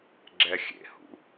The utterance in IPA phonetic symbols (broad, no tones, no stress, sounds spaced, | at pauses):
ɡ͡ǁ ɛ xʲ ḛ h ṵ